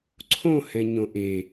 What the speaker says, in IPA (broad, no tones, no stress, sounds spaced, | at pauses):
ǀʰ õ h ɛ̃ ɲ õ ʔ e